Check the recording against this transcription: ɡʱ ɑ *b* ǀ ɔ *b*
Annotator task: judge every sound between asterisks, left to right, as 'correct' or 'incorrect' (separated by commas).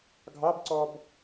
correct, correct